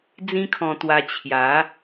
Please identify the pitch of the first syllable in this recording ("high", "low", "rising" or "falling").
high